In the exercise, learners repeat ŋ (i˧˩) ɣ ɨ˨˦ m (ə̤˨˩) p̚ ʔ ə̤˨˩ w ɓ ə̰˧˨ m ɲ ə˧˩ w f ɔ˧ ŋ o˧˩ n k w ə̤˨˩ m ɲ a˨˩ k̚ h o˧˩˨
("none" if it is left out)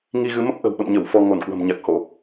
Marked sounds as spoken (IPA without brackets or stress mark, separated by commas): i˧, ə˦˥